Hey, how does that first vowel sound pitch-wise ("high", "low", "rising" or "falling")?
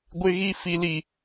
high